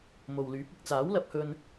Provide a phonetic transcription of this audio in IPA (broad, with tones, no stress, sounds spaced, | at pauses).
m o˨ w l yː˨˥ p̚ ɪ˨ k̚ t͡s aː˨˥ w l ɐ˧ p̚ h ɵ˧ n